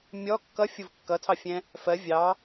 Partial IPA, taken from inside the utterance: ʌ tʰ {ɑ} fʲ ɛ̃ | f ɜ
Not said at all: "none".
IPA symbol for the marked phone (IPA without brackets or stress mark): ɑ